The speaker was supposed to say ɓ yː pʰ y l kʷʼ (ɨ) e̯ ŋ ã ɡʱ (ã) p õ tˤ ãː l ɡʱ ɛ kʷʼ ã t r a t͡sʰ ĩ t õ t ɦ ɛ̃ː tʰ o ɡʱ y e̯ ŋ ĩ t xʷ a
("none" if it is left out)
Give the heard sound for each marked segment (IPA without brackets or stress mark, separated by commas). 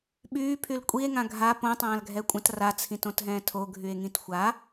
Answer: i, a